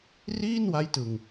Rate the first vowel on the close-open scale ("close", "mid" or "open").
close